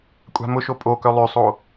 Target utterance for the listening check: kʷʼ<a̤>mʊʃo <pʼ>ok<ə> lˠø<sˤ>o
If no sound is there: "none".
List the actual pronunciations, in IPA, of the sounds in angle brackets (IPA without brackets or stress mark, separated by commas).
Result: a̤, pʼ, œ, sˤ